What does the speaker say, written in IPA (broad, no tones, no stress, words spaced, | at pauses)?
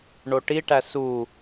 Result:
ɳoʈiʈæ su